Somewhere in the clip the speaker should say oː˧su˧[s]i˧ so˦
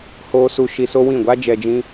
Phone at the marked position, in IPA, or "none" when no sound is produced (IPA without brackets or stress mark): ʃ